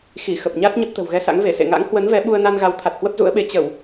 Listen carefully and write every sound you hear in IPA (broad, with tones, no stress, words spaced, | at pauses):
xi˧˩xə˨˩p̚ɲa˦˥t̚ ɲə˦˥p̚t̪ə̤˨˩wɣɛ˧sa̰˧˥ŋ ve˧˩sḛ˧˨ŋa̰˧˥ŋ hwə˨˦nvɛ˨˦ ɓu˧ə̯na˧n ɣa˨˦wt̪ʰa˨˩t̚hwə˦˥p̚ zṵ˧˥ə̯ɓe˨˦ t͡ɕə˧˩˨w